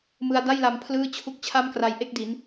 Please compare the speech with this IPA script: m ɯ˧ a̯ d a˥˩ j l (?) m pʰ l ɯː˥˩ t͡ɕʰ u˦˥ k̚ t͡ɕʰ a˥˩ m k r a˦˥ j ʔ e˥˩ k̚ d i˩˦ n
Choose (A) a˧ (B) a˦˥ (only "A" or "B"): A